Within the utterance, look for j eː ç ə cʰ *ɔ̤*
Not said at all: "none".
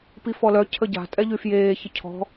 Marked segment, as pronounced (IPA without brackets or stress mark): ɔ̤